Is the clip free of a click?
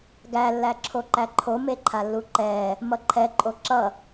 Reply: no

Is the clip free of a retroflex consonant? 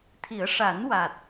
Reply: no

